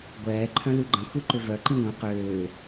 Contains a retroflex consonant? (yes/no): no